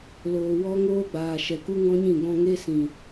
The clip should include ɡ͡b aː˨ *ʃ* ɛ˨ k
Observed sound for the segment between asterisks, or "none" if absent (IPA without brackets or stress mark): ʃ